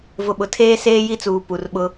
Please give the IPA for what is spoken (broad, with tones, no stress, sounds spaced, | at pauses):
v ʊ˨ ɓ ʊ˨ tʰ eː˦ s eː˦ j i˦ t͡s uː˨ p u˨ r ɓ ʊ˦